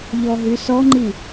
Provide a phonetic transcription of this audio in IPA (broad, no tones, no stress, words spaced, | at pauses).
ʎɔɦysɔŋ͡ǃi